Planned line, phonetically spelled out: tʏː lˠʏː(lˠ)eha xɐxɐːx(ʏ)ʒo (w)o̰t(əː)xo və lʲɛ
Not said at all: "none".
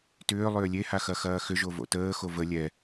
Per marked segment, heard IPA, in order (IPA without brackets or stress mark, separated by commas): lʲ, ʏ, v, əː